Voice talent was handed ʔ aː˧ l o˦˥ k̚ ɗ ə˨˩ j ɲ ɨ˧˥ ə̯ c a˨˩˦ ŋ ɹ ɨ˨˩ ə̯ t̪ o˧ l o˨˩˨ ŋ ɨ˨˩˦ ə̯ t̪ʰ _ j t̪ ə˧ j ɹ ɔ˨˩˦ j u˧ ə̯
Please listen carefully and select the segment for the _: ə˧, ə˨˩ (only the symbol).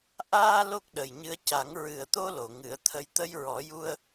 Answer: ə˧